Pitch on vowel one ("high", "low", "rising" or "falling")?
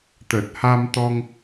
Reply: low